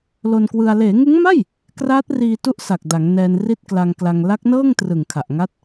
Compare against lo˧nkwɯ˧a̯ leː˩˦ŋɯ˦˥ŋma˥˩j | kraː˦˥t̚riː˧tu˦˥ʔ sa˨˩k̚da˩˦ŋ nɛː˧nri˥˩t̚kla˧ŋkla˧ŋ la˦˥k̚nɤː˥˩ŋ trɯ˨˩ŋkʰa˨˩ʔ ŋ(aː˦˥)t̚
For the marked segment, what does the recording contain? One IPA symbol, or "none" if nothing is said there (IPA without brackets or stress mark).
a˦˥